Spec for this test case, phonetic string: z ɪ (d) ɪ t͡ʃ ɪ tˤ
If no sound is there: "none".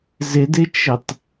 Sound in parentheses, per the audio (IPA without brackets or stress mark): d